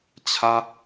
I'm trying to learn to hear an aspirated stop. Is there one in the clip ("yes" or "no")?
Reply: yes